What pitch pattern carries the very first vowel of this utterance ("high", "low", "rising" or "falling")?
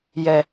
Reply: low